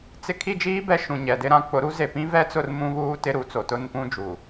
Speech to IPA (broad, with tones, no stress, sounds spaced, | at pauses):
t͡s ɪ˦ kʰ i˦˨ d͡ʒ iː˦ b ɛ˦ ʃ ũ˨ ɲ ɛ˨ d ɪ˦ ɾ ã˦ k͡p ʊ˨˦ ɾ u˦ z e˨ p ĩ˦ v ɛ˦ t͡s ʊ˦˨ r m ũ˦ β uː˦ t ɪ˦ ɾ u˨˦ t͡s o˨ t ʊ˦˨ n p ũ˦ d͡ʒ u˨